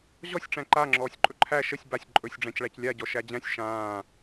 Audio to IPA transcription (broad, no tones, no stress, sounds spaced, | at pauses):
ʑ ɔ sʲ ʈ͡ʂ æ̃ ǃ a ŋ͡ǁ ɔː sʲ ǃʼ ɵ ǃʰ æ ʃ ə sʲ b a sʲ ǃʼ ɵ sʲ ɖ͡ʐ æ̃ c ɭ æ c lʲ a ɟ ɔ ʃ æ d͡ʑ æ̃ sʲ ʃ ãː